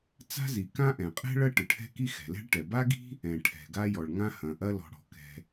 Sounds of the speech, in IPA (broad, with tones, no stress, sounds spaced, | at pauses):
t͡s a̤˥ z i˩ k ã˥ ʔ ɛ̃˩ qʼ ɛ̤˥ ɭ ɐ˥ ʈ ɨ˩ ʈʰ ɛ̤˥ k i˥ x ɛ̤˩ l ɛ̤˥ ɭ ʈ ɛ˩ b a˥ ɡ i̤˥ | ɛ̃˩ ʈʰ ɛ̤˩ ɡ a˥ j ɔ˩ ɭ ŋ ã˥ h ɐ̃˩ ʔ ɐ˥ l ɔ̤˩ ɽ ɔ̤˩ k ɛ̤˩